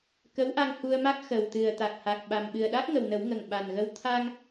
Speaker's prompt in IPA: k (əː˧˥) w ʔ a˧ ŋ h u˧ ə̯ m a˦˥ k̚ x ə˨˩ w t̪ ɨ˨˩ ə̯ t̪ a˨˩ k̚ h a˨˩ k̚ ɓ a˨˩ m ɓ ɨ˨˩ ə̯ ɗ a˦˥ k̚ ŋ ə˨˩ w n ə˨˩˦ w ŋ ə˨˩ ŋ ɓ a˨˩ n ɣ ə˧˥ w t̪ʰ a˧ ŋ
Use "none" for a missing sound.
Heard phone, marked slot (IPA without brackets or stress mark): ə˧˥